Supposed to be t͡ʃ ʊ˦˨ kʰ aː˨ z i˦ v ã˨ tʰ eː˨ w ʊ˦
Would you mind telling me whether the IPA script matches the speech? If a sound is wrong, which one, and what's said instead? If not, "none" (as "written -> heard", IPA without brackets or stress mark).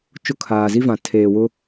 none